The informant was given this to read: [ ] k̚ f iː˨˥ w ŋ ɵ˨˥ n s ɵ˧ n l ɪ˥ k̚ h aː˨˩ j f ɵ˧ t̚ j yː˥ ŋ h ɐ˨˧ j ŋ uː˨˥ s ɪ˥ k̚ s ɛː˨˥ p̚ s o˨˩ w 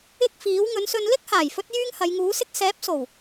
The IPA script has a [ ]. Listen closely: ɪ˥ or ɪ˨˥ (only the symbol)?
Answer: ɪ˥